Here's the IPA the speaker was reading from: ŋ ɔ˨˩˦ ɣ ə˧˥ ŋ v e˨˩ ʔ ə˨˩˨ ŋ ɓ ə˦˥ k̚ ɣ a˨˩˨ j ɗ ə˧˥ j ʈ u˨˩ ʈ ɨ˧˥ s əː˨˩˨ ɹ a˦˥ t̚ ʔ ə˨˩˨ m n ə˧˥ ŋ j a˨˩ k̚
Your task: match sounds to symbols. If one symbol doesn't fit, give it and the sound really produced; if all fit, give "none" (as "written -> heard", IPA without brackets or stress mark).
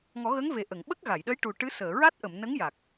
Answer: none